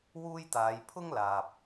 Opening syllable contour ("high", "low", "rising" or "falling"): high